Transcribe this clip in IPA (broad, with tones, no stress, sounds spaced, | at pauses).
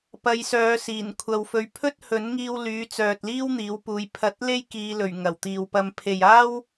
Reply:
p ɐ˨˧ j s œː˨˧ s iː˨˩ n kʷʰ ɐ˧ w f ɵ˧ ɥ pʰ ɵ˥ t̚ h ɵ˨˥ n ŋ iː˧ w l yː˨˥ t͡s œː˨ t̚ l iː˥ w n̪ iː˨˥ w p uː˨˧ j pʰ ɐ˨˥ t̚ l e˥ j k iː˨˧ l ɵ˨˩ ɥ ŋ ɐ˨˩ w t̪ iː˨ w p ɐ˧ m pʰ e˨ j aː˥ w